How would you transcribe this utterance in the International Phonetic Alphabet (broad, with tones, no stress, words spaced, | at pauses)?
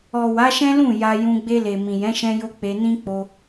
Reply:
ɔ˨ wa˨˦ʃɛ̃˦lũ˦˨ ja˧jũ˧ ɡ͡be˧le˨mĩ˨jɛ̃˨˦ ʃɛ̃˧jo˧ k͡pe˧nĩ˦ k͡po˧